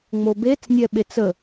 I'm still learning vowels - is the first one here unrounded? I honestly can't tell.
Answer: no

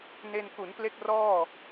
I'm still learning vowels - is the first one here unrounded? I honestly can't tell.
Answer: yes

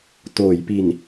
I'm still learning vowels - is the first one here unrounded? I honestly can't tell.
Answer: no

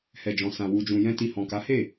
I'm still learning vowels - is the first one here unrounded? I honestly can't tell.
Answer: yes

